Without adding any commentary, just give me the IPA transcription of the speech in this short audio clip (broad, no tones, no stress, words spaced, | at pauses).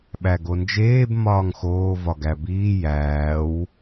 ɓæɡond͡ʒeːb mɒːŋxoːvɒ ɡæbiː jæːw